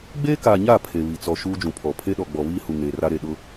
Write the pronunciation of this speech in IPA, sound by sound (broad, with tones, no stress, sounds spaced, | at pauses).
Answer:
ɡ͡b eː˦ k aː˨ ɲ a˦˨ pʰ e˨ β i˨ t͡s ɔ˨ ʃ uː˦ d͡ʒ ũ˨ pʰ ɔ˨ pʰ e˦ ɗ ɔ˨ ɡ͡b ɔ˨ β iː˦ h u˨ ŋ eː˨ r a˦ ɾ e˦˨ ɗ ʊ˨